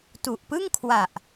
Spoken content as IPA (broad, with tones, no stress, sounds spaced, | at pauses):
t u˨˩ ʔ p ɯ˥˩ ŋ kʰ w a˨˩ ʔ